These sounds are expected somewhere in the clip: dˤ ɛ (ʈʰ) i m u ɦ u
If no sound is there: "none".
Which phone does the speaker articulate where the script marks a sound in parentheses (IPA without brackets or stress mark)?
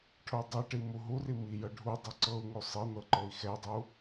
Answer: ʈ